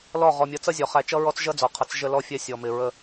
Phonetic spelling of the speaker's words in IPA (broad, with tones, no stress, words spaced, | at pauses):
lɔ˦˨ ʁɔ˨mʲʌ˨˦t͡sʌ˦zʲɔ˨ χæ˨t͡ʃʌ˦ ɹɔ˦t͡sʒʌ˦d͡zɔ˨qʰʌ˨˦t͡s ʒə˦lɔ˦ fʲɛ˦sʲɔ˨mɪ˨ ɹə˦˨